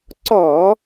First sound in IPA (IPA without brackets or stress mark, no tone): ǀ